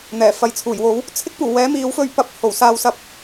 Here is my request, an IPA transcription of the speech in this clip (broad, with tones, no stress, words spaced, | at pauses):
n̪ɛː˨˩fɐ˨˧jt͡sʰuː˨˩jwo˨˥w | t͡sʰɪ˥k̚puː˨˩wɛː˨˥ miː˨˥wfɵ˧ɥpɐ˧p̚ ho˨˩wsaː˧wsɐ˧p̚